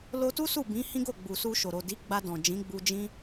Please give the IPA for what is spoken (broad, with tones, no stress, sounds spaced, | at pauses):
l o˧ t u˦ s u˦˨ b ĩ˨˦ h ĩ˦ ɡ o˦˨ ɡ͡b u˨ s u˧ ʃ o˨ ɾ o˨ d i˨˦ ɡ͡b a˧ d ɔ̃˨ d͡ʒ ĩ˨˦ ɡ͡b u˧ d͡ʒ ĩ˦